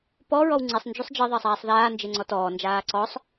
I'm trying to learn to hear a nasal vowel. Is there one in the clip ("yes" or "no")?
no